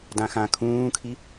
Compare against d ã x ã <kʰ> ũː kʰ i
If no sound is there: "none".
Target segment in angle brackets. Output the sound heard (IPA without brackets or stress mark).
kʰ